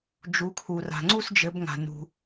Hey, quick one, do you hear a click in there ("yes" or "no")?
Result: yes